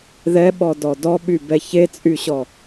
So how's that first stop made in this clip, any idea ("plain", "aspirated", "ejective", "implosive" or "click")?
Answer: implosive